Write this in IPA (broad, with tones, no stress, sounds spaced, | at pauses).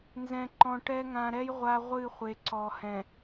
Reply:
n z ɛ̃˨ ǃ ɔ̃˨ ʈ ɛ˦ ŋ ã˨ ɾ ɛ˦ j ʁʷ a˦ ʁʷ ɨ˦˨ χʷ e˨ ǀ ɔ˨ h ɛ̃˨